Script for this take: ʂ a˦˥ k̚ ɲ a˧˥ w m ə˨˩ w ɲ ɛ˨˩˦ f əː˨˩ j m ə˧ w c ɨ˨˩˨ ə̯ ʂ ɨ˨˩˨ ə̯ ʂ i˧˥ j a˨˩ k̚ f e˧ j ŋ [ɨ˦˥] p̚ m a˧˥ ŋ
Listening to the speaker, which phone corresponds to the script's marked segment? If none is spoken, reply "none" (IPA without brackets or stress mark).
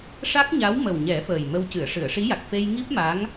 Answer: i˦˥